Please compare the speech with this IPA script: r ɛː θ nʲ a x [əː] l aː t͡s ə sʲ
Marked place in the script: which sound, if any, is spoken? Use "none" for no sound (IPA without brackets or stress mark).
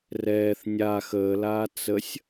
əː